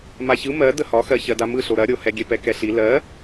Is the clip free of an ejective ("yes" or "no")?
yes